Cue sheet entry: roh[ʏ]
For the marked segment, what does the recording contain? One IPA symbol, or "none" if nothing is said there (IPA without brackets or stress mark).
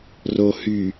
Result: y